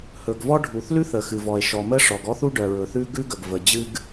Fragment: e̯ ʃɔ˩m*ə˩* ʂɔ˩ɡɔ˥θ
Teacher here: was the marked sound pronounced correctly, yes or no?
no